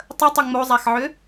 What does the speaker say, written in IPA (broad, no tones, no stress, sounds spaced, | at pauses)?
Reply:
tˤ ə tˤ ʏ ŋ͡m o zˤ a x ʕ ʏ